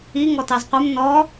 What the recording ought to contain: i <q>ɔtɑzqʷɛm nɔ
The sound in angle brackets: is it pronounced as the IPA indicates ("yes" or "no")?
no